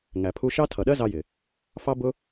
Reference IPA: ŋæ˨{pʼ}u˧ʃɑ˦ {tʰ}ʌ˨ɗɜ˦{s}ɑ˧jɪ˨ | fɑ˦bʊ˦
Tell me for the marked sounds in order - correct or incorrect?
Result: incorrect, correct, incorrect

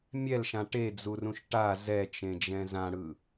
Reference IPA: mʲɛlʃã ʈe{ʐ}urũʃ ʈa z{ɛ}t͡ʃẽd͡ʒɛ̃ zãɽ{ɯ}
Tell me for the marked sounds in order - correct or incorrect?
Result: incorrect, correct, correct

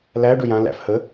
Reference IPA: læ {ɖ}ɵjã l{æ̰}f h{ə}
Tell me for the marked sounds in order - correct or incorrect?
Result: correct, correct, correct

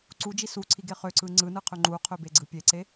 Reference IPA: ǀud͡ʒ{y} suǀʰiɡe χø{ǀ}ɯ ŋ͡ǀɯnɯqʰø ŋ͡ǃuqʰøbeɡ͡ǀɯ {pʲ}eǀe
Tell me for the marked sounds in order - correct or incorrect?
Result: incorrect, correct, correct

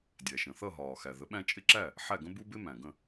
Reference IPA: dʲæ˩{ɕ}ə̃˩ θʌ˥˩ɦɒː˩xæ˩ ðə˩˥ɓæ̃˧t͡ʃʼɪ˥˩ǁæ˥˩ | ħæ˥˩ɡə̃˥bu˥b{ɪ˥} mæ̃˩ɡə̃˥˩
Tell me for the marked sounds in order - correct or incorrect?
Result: incorrect, correct

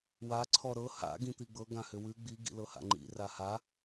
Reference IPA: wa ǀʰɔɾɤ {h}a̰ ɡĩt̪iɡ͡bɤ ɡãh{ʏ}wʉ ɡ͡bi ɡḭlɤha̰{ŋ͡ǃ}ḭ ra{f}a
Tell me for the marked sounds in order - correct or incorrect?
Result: correct, correct, correct, incorrect

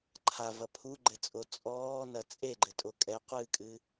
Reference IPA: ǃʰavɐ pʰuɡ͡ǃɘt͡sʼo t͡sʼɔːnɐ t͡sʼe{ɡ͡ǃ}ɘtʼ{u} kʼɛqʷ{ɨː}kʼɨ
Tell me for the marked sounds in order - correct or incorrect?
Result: correct, incorrect, correct

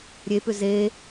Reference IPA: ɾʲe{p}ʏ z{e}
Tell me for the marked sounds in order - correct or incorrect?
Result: correct, correct

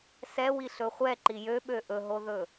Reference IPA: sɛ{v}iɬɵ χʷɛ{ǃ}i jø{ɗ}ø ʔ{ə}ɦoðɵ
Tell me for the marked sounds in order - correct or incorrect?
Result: incorrect, correct, incorrect, incorrect

